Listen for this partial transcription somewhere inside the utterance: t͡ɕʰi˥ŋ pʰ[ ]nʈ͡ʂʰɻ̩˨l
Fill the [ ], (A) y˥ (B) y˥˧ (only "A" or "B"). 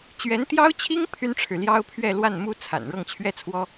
A